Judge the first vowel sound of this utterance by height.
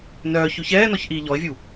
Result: mid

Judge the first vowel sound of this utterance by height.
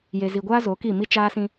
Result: mid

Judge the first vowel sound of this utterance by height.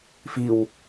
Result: high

